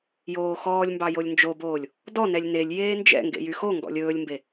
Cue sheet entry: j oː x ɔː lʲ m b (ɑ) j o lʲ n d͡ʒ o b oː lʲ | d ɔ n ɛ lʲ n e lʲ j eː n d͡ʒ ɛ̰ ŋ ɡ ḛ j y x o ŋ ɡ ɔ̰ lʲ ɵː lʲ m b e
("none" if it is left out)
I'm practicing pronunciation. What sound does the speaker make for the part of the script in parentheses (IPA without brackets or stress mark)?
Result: ɑ